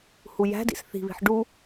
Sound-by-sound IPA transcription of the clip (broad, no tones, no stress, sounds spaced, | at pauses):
h u j æ̤ d ḭ s θ i̤ β i̤ ħ ɖ u